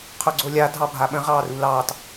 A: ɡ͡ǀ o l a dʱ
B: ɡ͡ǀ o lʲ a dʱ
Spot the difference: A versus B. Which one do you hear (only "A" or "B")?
B